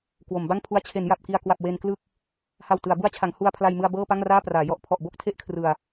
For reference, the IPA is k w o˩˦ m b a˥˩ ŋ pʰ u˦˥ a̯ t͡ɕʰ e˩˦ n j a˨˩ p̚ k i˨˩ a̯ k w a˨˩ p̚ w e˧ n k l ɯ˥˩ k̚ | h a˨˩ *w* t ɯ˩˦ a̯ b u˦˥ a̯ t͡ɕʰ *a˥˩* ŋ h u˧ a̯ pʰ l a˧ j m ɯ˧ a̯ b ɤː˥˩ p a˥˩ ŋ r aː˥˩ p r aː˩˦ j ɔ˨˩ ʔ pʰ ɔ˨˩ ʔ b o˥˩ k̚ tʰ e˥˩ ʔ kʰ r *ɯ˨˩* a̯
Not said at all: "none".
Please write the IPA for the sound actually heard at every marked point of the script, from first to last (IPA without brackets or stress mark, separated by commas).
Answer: w, a˩˦, ɯ˨˩